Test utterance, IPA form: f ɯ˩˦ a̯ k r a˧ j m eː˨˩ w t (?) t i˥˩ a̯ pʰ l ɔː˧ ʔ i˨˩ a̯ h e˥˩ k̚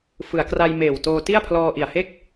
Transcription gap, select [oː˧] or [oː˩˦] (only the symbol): oː˧